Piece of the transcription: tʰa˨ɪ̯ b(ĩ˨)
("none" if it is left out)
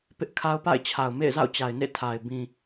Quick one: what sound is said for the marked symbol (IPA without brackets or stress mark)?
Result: ĩ˨